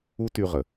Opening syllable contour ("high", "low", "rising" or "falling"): high